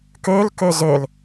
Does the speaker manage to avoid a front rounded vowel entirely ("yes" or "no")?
no